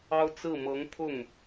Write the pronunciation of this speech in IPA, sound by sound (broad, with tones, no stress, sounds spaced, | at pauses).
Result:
ɑ˥ ʊ̯ t͡s ɹ̩˥˩ m ɤ˧˥ ŋ pʰ ʊ˥˩ ŋ